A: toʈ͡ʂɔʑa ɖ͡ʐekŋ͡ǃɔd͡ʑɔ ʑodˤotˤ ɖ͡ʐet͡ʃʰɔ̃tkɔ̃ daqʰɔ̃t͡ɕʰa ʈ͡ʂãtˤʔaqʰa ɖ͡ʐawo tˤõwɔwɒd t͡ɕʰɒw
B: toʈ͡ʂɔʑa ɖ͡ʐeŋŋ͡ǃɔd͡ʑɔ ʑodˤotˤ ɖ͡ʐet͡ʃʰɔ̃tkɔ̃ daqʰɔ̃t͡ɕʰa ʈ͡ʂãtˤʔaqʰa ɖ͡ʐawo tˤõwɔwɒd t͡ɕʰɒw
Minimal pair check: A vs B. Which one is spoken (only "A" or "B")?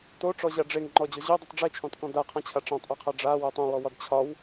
B